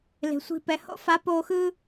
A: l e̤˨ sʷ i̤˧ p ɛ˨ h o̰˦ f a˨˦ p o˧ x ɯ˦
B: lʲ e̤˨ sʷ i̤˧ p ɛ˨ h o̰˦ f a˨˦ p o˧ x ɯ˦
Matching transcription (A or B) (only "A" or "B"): A